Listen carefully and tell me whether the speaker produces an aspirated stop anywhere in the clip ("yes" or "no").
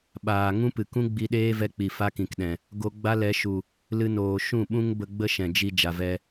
no